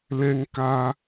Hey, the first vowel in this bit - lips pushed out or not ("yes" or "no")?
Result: no